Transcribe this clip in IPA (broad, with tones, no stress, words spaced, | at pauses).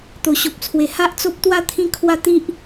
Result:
t̪o˨˩ɕo˨p̚t͡sʰwe˨˩ ha˦ʔt͡so˦p̚t̪wa˥˧ t̪ʰĩ˦kʰwa˦t̪i˦ʔ